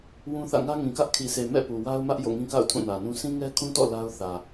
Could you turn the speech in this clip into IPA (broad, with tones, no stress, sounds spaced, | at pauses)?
w ũ˦ θ ä̰˦˨ ŋ ä˦ ŋ ĩ˨ k ä˦ ʔ kʰ i˨ sʰ e˨ m ɛ̰˦˨ p u˨ w a˦ ʊ̯ m ä˦ ʔ j o̰˦˨ ŋ ĩ˦ k a̰˦˨ ʊ̯ tʰ ũ˦˨ n ä˨ n ũ˦ s ĩ˦ ŋ ɛ˦ kʰ ũ˦ t ɔ̰˦˨ l a˦ ʊ̯ θ ä˨